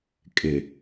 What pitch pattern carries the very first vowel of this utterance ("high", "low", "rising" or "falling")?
low